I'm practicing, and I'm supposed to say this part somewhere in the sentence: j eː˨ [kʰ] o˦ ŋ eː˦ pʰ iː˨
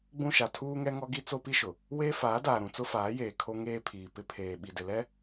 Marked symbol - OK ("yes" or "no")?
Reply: yes